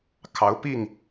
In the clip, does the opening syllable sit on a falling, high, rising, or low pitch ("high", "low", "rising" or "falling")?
rising